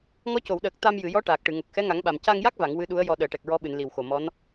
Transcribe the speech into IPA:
ŋ ɔ˧˥ c o˨˩˨ w ɗ əː˨˩ k̚ t̪ a˧ m j ɨ˨˩˨ j ɔ˧˥ ʈ aː˨˩ k̚ ʈ ɨ˨˩˨ ŋ o˨˩ k̚ x ɛ˧˥ ŋ a˨˩˦ ŋ ɓ a˨˩ m c a˧ ŋ j a˦˥ k̚ v a˨˩˨ ŋ w ɨ˧˥ ɗ u˧˥ ə̯ j ɔ˧ ɗ əː˨˩˨ ʈ ɛ˨˩ k̚ ɹ ɔ˧˥ ɓ ɨ˨˩˨ n l i˨˩ w x o˨˩ m ɔ˧˥ n

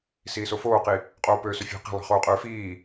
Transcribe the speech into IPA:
s iː s o f oː q i | qʼ oː p øː s ø fʲ æ̤ q i̤ lˠ ɑ̤ χ oː qʼ øː f iː

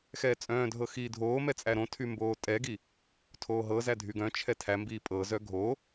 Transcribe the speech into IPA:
x ɛː t͡sʼ œ̃ː dʱ ɤ x iː dʱ oː m ɛ t͡sʼ æ ɾ õ tʰ y m b oː tʼ ɛ ɡ i | tʰ oː ɦ ɤ z æ dʱ y ɡ œ̃ t͡ʃʰ ɛ tʰ æ m b iː pʼ ɤ z œ ɡʱ o

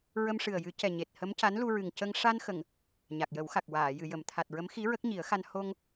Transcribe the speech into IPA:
ɹ ə˧ m ʂ ɨ˨˩ ə̯ j ɨ˨˩˦ c ɛ˨˩ ɲ e˨˩ t̚ h ə˧˥ m c a˧˥ n l u˧ ɹ ɨ˨˩ ŋ c ə˧ ŋ ʂ a˧ n x ə˨˩˨ ŋ | ɲ a˨˩ k̚ j ə˨˩˦ w x a˨˩ k̚ w aː˨˩˨ j ɨ˨˩˨ j ə˨˩˨ m t̪ʰ a˨˩ t̚ ɹ ə˧˥ m x i˧˥ ɹ ə˦˥ k̚ ɲ i˨˩˦ ə̯ x a˧ n h o˧ ŋ

